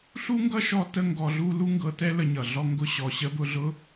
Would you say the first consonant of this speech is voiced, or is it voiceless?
voiceless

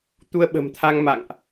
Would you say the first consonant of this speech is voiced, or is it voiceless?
voiceless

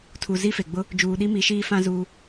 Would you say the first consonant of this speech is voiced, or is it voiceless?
voiceless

